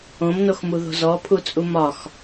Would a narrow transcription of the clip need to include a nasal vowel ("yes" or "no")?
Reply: yes